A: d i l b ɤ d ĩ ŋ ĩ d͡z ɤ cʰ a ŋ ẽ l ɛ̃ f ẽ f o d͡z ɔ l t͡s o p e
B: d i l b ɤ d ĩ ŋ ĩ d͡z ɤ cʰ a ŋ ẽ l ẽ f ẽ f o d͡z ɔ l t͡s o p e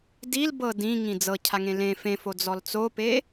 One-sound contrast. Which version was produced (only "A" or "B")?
B